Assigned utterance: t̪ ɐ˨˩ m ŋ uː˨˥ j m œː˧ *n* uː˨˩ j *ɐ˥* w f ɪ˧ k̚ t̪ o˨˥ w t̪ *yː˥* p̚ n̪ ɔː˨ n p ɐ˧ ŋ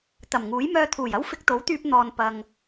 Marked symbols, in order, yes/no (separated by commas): no, yes, no